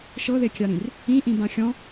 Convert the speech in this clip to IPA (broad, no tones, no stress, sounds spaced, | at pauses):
ʃ ɤ ð e kʲ a ɾ ĩ r | ĩ ʔ ĩ b ã xʲ ɔ̃